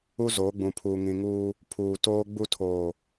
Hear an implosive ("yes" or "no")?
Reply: no